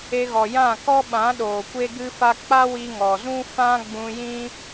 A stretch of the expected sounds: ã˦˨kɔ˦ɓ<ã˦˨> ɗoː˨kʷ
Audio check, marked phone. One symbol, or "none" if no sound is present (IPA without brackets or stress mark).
ã˨˦